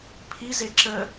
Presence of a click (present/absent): present